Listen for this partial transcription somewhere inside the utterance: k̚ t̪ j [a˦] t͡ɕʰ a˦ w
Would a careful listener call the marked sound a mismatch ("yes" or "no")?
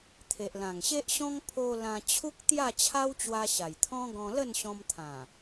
yes